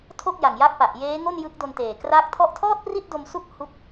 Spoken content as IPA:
tʰ o˥˩ k̚ j a˨˩ ŋ j a˦˥ k̚ p a˨˩ ʔ j eː˦˥ ŋ o˥˩ n j ɯ˦˥ k̚ d o˧ n t eː˨˩ k r a˦˥ k̚ tʰ ɔ˦˥ ʔ tʰ ɔː˥˩ t̚ p r i˥˩ t̚ d o˧ m s u˦˥ k̚ h u˥˩ k̚

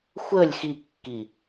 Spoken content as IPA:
xʷ ə lʲ x i kː i

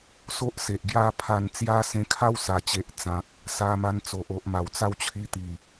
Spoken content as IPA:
s o˦ ʔ s e˨ ʔ ɡ j a˥˧ pʰ a˧ n t͡s j a˦ s ẽ˧ kʰ a˦ w s a˨˩ t͡ɕ e˨ ʔ t͡s ã˨ k̚ | s a˧ m a˧ n t͡s o˨ ʔ o˨ ʔ m a˨˩ w t͡s a˥˧ w t͡ɕʰ i˧ t̪ i˨˩

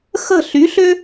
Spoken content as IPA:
x ə̤˦˨ ɬ y˨˥ ɬ ø˥

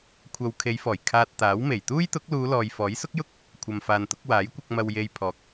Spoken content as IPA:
kʷʰ ɐ˨ w kʰ e˨˧ j f ɔː˨˩ j kʰ aː˧ t̚ t̪ aː˨˥ w m e˨˩ j t̪ uː˥ j t̪ ʊ˨˥ k̚ l uː˨˧ l ɔː˨ j f ɔː˨˥ j s ʊ˥ k̚ j ʊ˥ k̚ | kʷʰ ɐ˨ m f aː˨ n t̪ ʊ˨˥ k̚ w aː˨˥ j kʷ ɐ˧ k̚ m ɐ˧ w j e˧ j pʰ ɔː˨ k̚

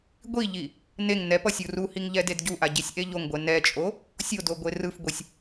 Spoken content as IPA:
ɡʷ i ʎ i | n e ŋ n ɛ p ʌ sʲ u r u h i ŋ ʎ ɛ d e d ɟ u ʔ a ɟ i sʲ ʔ e ʎ o ŋ ɡʷ ɛ n ɛ t͡ʃʼ o | sʲ o d o ɡʷ e r ɯ f ɡʷ i sʲ

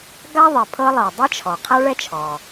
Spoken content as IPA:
ɡ a˥ ðˤ e˩ pʰ ɤ˥ lˠ ɤ˩ dˤ ɯ˥ t͡ʃʰ ɔ˩ qʰ a˥ ɭ ɛ˥ t͡ʃʰ ɔ˩

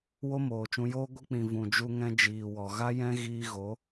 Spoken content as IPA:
w o˦ m oː˨ t͡ʃ ũ˧ j oː˦ ɡʷ ɨ˧ k͡p ĩ˨ v ũ˨ d͡ʒ u˧ ŋ ɛ̃˧ d͡ʒ iː˨ w ɔ˨ ɣ a˦ j ɛ̃˦ ɣ iː˧ ɣ o˨˦

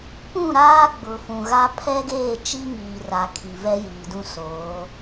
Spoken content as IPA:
p ũ˦˨ ɾ aː˦ ɡ͡b ʊ˨ f ũ˨ ɣ a˦ pʰ ɛ˦ ɡ eː˦˨ t͡ʃ i˦ ŋ iː˨ r a˨ kʰ i˨ v ɛ˦ j iː˨ d ũ˦ s oː˨˦

